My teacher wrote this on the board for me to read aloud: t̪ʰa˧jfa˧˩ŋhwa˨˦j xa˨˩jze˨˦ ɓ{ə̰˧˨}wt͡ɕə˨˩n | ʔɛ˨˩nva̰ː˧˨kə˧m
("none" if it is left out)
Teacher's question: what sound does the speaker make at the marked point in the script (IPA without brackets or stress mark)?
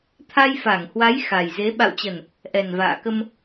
a̰˧˨